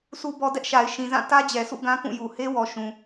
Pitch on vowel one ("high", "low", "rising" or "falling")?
low